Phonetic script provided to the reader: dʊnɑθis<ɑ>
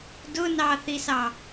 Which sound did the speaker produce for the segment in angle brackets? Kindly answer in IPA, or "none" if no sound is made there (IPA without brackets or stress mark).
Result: ɑ